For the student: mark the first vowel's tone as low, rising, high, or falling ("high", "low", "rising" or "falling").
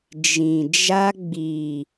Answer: low